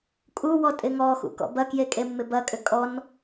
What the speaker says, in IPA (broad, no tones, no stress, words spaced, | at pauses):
kʼuwɔ tʼɪŋɔxṵ kɔ̰bɐkje kʼemːɪbɐkʼʏ kʼɔn